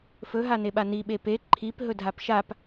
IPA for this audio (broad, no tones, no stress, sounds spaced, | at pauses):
f ɵ ɦ a n e ɓ a n i ɓ e p e ǃʰ i p ɦ ɵ dʱ a p ʃ a p